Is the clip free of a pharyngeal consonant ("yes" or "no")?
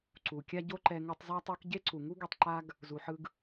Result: no